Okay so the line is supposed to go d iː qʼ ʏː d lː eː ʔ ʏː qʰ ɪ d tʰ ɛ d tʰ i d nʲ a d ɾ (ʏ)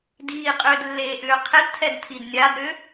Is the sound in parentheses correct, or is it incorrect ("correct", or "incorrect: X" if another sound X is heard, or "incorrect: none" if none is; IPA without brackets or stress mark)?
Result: correct